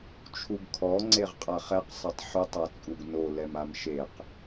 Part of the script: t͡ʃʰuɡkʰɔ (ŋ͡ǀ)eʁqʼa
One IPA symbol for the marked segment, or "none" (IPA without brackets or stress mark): ŋ͡ǀ